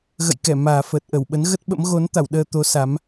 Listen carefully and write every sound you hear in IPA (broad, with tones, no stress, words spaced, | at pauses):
ɣə̰˧˨jkɛ˧˩ maː˨˩fəː˨˩t̚ ʔə˧˩wɓə˨˦n ɣə˦˥t̚ɓə̰˧˥m ɣo˨˦nt̪a˧˩wɗəː˧ t̪o˨˦ sa˨˦m